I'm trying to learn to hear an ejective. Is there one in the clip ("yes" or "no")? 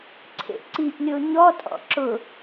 yes